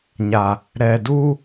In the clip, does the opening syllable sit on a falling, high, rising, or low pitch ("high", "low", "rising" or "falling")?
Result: low